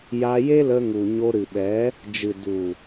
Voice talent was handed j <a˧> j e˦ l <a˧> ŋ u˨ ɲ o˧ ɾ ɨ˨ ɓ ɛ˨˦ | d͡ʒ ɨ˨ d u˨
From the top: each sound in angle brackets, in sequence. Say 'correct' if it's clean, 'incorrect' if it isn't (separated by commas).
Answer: correct, incorrect